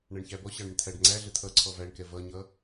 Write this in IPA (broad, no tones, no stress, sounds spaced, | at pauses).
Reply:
ɳ æ ɳ ç æ b ɔ ɕ ɑ ɳ ɪ ɳ t̪ʰ æ ɖ ŋ͡ǀ æ ɮ ə t̪ʰ ʌ ǀʰ ɔ v æ ɳ k ɛ v ʌ ɲ ʌ